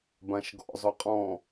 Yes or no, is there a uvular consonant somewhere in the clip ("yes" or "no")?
yes